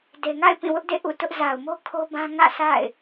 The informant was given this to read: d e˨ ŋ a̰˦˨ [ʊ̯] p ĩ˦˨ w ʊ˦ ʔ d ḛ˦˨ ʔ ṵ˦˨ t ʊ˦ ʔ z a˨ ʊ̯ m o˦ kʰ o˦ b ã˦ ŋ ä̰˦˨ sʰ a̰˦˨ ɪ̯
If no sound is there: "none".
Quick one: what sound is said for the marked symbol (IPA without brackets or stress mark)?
ɪ̯